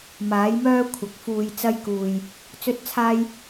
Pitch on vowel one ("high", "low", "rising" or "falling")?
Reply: rising